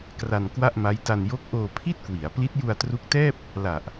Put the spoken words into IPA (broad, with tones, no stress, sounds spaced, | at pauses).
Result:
k r a˧ n k w a˥˩ ʔ m a˦˥ j t a˧ n j o˦˥ k̚ ʔ oː˧ pʰ i˥˩ t̚ k w i˩˦ a̯ p l i˦˥ t̚ j u˧ a̯ t r u˦˥ k̚ t ɛː˥˩ p̚ | l a˨˩ ʔ